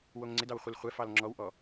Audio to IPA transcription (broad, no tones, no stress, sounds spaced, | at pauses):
w o ŋ ŋ͡ǀ ɪ d ɑ w χʷ ɪ l χʷ ɛ f ɑ l ŋ͡ǁ ɔ w ʔ ɔ